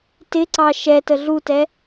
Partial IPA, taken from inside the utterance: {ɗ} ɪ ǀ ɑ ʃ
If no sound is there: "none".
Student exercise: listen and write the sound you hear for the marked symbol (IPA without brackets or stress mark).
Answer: t